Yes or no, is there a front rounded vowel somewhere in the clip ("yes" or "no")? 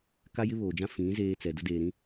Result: no